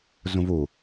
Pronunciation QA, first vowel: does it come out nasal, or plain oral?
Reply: nasal